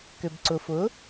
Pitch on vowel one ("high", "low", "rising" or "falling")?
low